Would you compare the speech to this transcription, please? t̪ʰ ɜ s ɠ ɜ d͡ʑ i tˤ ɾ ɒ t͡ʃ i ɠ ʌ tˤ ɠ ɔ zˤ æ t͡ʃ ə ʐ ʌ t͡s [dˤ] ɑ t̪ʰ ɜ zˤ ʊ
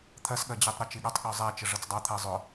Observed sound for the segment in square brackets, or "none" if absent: dˤ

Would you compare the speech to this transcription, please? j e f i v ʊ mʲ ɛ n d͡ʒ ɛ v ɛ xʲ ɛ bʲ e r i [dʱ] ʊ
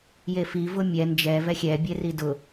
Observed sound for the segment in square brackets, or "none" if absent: d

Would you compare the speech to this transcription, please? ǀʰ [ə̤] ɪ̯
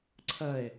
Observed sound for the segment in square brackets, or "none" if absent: ə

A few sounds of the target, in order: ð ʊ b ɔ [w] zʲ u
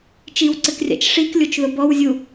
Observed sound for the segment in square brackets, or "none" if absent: w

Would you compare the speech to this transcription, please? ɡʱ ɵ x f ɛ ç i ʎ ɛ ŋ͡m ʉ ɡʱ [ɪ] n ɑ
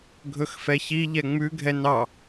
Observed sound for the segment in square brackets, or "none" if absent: ɛ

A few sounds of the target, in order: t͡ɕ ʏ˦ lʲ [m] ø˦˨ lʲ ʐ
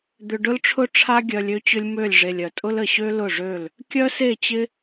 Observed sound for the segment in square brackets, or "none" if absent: m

